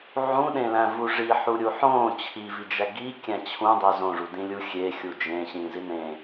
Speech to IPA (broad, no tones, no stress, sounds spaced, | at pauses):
ʕ ũ ɗ ẽ l æ̃ v u ʐ i ħ u ɾʲ u ħ õ t͡ɕʰ i v i d͡ʒ æ ɡ i kʲ æ̃ t͡ɕʰ ũ dˤ e z õ ʐ u d ĩ lʲ u xʲ e xʲ u d͡ʒ ẽ ɕ ĩ z i n ẽ